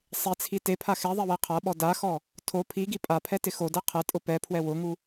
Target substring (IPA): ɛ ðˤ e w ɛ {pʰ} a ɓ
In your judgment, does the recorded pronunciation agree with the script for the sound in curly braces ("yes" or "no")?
no